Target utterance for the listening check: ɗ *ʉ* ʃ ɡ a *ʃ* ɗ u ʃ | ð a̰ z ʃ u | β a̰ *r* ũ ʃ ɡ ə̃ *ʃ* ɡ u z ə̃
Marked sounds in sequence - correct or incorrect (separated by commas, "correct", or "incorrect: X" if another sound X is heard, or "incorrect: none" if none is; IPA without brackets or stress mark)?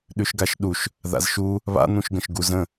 correct, correct, incorrect: n̪, correct